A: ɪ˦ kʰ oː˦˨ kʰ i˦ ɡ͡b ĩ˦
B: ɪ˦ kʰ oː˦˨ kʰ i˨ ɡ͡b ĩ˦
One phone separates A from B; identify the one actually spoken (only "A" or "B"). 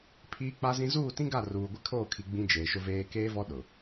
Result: B